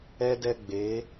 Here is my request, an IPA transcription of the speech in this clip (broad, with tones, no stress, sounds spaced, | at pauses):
ɛ˦ d ɛ˦ ɡ͡b e˨˦